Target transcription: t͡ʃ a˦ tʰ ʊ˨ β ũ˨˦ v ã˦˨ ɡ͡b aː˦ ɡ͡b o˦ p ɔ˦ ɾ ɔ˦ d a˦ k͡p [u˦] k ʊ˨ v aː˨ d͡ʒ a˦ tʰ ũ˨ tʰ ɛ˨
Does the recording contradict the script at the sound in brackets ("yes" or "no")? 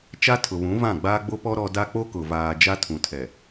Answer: yes